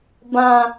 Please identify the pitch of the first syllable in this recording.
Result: high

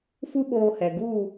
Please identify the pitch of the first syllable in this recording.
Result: high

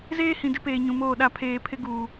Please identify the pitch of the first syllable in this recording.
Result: high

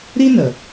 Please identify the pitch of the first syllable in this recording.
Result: high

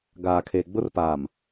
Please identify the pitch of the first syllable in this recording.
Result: low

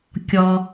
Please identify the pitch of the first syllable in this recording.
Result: low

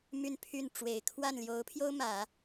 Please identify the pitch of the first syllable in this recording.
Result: falling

